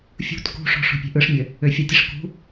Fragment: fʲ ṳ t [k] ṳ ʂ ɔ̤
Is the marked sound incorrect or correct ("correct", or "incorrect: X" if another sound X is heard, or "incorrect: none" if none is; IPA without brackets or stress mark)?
correct